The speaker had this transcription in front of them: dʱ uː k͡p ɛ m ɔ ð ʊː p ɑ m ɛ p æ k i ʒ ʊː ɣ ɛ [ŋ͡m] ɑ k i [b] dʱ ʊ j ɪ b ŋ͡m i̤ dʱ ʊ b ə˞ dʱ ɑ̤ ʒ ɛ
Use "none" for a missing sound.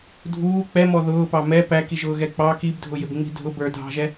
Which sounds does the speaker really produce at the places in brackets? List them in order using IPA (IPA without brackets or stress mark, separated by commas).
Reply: k͡p, b